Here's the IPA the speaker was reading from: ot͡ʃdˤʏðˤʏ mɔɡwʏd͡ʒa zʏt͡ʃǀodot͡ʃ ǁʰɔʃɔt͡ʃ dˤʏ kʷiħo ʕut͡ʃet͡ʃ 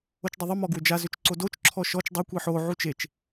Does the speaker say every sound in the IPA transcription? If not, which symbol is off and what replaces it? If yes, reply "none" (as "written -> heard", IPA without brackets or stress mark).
none